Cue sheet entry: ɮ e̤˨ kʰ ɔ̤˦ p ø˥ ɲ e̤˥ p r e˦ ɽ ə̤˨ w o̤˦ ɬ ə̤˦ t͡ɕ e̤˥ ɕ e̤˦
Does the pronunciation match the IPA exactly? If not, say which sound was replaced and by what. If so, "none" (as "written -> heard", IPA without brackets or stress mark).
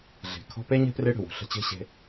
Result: ø˥ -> e˥